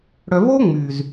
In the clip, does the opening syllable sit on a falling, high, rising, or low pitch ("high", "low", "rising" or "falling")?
low